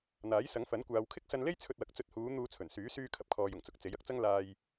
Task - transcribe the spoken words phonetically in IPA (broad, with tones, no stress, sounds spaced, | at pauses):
n̪ aː˨˥ j s ɐ˨˥ ŋ f ɐ˨˥ n kʷ aː˨ w kʰ ɪ˥ k̚ s ɐ˧ n l e˥ j t͡sʰ ɵ˧ t̚ w ɐ˨˥ k̚ t͡s ɵ˧ t̚ h uː˨˧ n̪ uː˧ t͡sʰ ɵ˨˩ n s yː˨˥ s yː˧ kʰ ɐ˨ p̚ kʰ ɔː˨ j ʊ˨˩ ŋ t͡s ʊ˨˥ k̚ t͡s e˨˥ j ɐ˧ k̚ t͡s ɐ˥ ŋ l aː˧ j